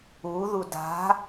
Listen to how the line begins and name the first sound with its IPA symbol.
u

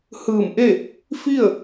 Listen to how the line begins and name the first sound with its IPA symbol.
h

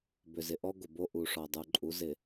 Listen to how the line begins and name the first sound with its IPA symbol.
b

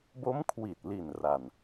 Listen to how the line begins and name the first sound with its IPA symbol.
b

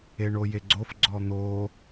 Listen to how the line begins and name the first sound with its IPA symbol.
e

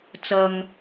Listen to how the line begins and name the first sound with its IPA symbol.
t͡s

